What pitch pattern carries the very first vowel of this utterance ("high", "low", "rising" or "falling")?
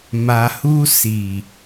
low